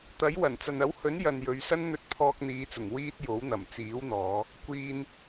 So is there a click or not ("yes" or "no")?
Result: no